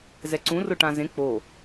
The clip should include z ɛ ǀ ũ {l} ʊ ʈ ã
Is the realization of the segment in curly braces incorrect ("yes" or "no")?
yes